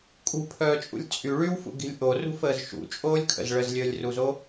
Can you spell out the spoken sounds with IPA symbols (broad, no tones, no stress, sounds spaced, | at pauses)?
kʼ ṳ pʰ œː t͡ʃʼ ṵ lʲ t͡sʼ y ɭ y w f ṵ ɡ i̤ lʲ ʔ o r ṳ f əː z ʃ ṵ t͡ʃʼ oː lʲ kʰ ə̰ z ɭ ə z lʲ əː lʲ r u z o